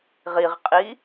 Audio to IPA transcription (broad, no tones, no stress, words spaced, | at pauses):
ʁiʁqʼi